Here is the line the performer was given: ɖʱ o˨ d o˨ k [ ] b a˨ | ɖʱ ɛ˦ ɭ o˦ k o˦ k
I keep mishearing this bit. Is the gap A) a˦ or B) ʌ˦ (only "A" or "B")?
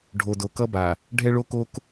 B